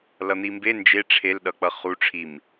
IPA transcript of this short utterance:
l ʌ n̪ i m b e n d͡ʒ e ʈ͡ʂʰ e l ɗ ʌ k͡p ʌ χ u ʈ͡ʂʰ i m

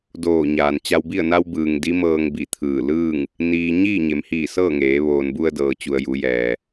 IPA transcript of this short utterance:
d oː˧˩ ɲ aː˩ n t͡ɕ a˧ w b i˥˨ ə̯ n a˧ w b ɯː˩ ŋ d i˧˥ m ɤː˧ ŋ b i˧˩ t̪ʰ ɯː˧˩ l ɯː˥˨ ŋ | n iː˧ ɲ iː˥˨ ɲ e˩˧ m h iː˧˩ s ɤː˥˨ ŋ eː˩˧ ʋ oː˩ n b u˧ ə̯ d ɤː˩ t͡ɕ u˩ ə̯ j u˩˧ j ɛː˩

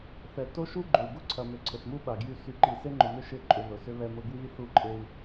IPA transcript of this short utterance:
θ ɛ˨ t o˦ ʃ u˦ ɡ͡ǃ ʏ˨ u̯ ɡ ʊ˦ ǀʰ ɐ˨ m ʏ˨ ǀʰ ɪ˨ θ m u˦ ɓ a˨ ɡ j y˦˨ s y˨ ǃ i˨ s e˦ ŋ͡ǃ ʊ˨ m ʏ˦ ʃ ɪ˦˨ ǃʼ ʏ˨ ð ʊ˨ s ʏ˦ β ɛ˦ m ʊ˦ ɡ w i˦ θ u˦˨ ǃʼ e˦ i̯

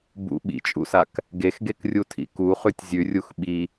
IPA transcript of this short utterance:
b ṵ ɓ ḭ t͡ʃʼ ṵ s a k | ɡ e x ɡ e k rʲ u tʰ ḭ k u χ ʉ tʲ zʲ ʉ rʲ u x ɓ i

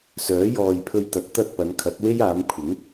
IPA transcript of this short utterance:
s œː˨˥ j ɔː˨ j pʰ ɵ˧ ɥ t̪ ɐ˨˥ t̚ t̪ ɐ˧ t̚ p ɐ˨˧ n kʰ ɐ˨˥ t̚ w e˥ j aː˨˧ m kʷʰ ɪ˨˥ ŋ

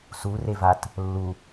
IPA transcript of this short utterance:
s u r e v a t | lː u

